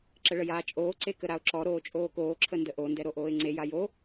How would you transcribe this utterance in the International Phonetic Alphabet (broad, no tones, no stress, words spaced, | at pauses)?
ǁəɭəjaːt͡ʃʼoː ǀekəɾaʊ̯ǁɔ ɾoːt͡ʃʼoːkoː ǁʰəndəʔo ndɛɾoʔoːɪ̯ŋ͡ǀe jajo